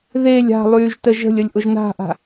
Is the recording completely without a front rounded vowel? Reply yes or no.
no